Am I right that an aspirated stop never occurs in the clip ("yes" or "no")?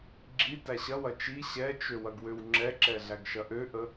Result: yes